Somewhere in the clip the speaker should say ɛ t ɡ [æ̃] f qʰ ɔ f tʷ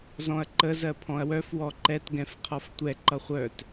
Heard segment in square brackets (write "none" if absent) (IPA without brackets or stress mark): ɛ̃